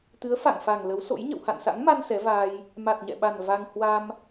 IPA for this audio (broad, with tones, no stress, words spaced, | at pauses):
t̪ɨ˨˦ə̯fa̰˧˨ŋfa˨˩ŋ lə˨˦wso̰˧˥j ɲə̰˧˨wha̰˧˨nsa̰˧˥ŋma˧n sɛ˨˦vaː˧j | ma˨˩t̚ɲɛ̰˧˨ɓa˨˩n va˧ŋ hwa˧m